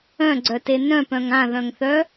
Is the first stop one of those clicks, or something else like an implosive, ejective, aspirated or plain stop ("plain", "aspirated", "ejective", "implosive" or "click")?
click